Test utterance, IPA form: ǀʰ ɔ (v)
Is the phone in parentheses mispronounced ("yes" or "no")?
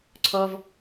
no